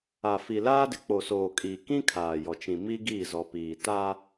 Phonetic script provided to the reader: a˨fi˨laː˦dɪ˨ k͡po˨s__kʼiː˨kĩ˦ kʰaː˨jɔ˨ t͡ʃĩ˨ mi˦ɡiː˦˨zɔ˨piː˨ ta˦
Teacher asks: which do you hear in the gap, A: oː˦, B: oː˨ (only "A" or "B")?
B